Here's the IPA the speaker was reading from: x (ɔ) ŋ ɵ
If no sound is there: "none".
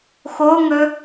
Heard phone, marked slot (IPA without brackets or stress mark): o